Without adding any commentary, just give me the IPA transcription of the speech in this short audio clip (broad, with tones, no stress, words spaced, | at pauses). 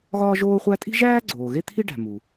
ɣɒː˥ʒoː˥χʷæ˥ tʼi̤˥ʒæː˥ɡ͡ǀoː˩ ɣe˥t̪ʰi˥ɖæ̤˩ mu˩